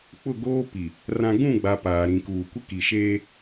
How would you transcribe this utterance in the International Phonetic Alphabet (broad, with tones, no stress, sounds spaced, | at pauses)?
k͡p ʊ˦˨ ɡ oː˦ p i˨ | r ã˨ ɡ ũ˦˨ ɡ͡b a˨ p aː˨ ɾ ĩ˨ k uː˨ kʷ ɪ˦ k i˨ ʃ eː˦